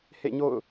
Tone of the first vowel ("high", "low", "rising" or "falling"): falling